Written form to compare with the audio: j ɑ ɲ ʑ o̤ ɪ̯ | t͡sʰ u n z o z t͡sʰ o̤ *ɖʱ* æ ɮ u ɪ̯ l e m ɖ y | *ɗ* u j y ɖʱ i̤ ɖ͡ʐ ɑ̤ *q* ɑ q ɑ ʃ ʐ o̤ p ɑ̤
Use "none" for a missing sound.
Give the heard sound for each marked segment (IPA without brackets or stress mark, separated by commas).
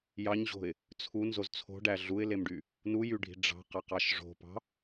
ɖ, n, q